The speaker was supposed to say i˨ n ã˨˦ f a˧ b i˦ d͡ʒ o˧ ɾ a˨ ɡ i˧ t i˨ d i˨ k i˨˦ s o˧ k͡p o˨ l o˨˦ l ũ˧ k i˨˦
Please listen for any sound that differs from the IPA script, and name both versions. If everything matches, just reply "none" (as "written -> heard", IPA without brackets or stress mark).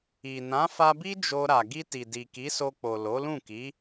ũ˧ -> ũ˦˨